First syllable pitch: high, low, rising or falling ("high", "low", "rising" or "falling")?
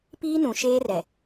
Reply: high